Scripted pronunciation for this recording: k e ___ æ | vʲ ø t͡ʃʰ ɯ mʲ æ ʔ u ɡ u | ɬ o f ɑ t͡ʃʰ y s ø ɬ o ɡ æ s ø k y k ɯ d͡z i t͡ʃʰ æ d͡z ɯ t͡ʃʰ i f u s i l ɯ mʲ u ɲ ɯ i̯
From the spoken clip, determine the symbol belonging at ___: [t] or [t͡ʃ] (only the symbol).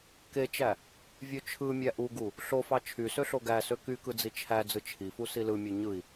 t͡ʃ